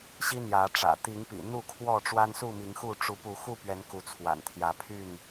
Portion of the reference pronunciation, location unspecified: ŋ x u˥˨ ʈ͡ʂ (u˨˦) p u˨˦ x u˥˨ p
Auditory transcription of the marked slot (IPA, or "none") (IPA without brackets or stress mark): u˨˦